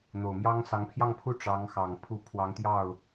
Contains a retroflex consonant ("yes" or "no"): yes